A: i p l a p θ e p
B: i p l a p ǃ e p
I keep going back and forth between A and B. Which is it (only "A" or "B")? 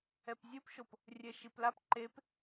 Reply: B